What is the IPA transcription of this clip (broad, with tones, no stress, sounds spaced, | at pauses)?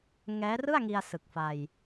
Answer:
ŋ ɛː˦˥ r ɯ˥˩ a̯ ŋ i˧ a̯ s ɯ˨˩ k̚ f a˧ j